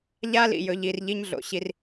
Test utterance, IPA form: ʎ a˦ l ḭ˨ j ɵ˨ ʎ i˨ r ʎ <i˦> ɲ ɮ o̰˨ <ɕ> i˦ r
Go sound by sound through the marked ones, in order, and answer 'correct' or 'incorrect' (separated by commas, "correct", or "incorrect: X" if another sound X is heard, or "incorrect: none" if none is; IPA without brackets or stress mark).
correct, correct